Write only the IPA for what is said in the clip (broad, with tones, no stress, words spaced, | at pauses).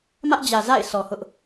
mä˦ʔd͡ʑä˨ za̰˦˨ɪ̯ sɔ˨hʊ˦ʔ